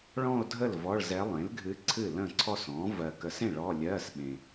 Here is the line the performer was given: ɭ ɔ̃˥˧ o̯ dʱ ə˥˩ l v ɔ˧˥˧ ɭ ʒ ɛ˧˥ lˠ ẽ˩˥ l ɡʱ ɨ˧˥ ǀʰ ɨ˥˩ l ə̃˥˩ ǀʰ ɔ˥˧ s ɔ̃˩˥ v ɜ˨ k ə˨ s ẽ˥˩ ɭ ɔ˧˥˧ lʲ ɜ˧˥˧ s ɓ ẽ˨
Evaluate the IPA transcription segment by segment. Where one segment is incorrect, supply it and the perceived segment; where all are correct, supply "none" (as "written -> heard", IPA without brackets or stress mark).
ʒ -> z